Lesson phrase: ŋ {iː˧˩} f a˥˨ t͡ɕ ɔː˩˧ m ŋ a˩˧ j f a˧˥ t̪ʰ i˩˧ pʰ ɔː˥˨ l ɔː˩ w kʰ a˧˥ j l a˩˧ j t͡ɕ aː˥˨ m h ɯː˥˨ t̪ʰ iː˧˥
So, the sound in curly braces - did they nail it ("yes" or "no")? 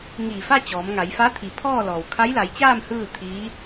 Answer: yes